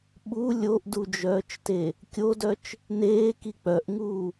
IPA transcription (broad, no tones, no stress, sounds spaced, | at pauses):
ɓ u lʲ o ʔ d u d͡ʒ œː t͡ʃ t e | kʲ o d œ t͡ʃ | n eː k i k͡p œ ʔ ŋ uː